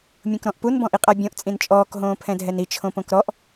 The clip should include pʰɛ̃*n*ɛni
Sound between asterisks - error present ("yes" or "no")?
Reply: yes